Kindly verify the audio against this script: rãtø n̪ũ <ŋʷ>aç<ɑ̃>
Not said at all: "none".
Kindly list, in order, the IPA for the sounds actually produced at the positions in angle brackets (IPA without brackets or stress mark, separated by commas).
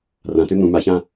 m, ã